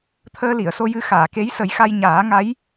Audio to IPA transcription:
t̪ʰ əː˧ l i˨˩˨ ə̯ s o˧ j ɨ˧ x aː˨˩˨ k e˧˥ j s ə˨˩˦ j x a˧ j ɲ aː˨˩˦ ŋ a˧˥ j

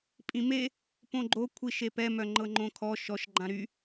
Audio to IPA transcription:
pʼ ĩ m e | p õ ɡ͡ǃ o kʷʰ i ʃ e p ɛ m œ ŋ͡ǃ ɤ ŋ͡ǃ õ kʰ ɔ ʃ ɔ ʃ ɡ͡ǃ ã ɾ y

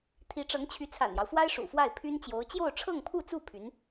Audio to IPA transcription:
t̪ʰ i˧˥ ʈ͡ʂ ɤ˧˥ ŋ t͡ɕʰ y˧˥ t͡sʰ a̰˨˩ n j ɑ˦ ʊ̯ f w a˥ ɪ̯ ʂ ṵ˨˩ f w a˥˩ ɪ̯ pʰ y˥ n t͡ɕ j o˧˥ ʊ̯ t͡ɕ j o˥˧ ʊ̯ ʈ͡ʂʰ ɤ˥˧ ŋ pʰ u˥˧ t͡s u˥˩ pʰ y˧˥ n

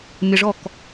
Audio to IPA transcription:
mʲ ə ʐ ɔ k

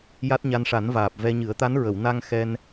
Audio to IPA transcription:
j a˦˥ t̚ ɲ a˧ n ʂ a˨˩˦ n v aː˨˩ p̚ v ɛ˧ ɲ ɨ˨˩˦ ə̯ t̪ a˧˥ n ɹ ə˨˩˨ w n a˧ ŋ x ɛ˧ n

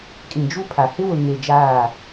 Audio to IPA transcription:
kʼ ĩ˨ d͡ʒ u˦ pʰ a˨ h ɪ˦ w ʊ˨ ŋ e˨ d͡ʒ aː˦˨

